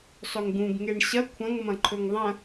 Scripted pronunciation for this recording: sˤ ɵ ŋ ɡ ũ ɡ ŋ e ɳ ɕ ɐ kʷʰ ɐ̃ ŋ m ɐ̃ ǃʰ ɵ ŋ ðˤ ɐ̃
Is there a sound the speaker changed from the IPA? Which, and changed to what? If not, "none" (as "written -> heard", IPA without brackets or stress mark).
none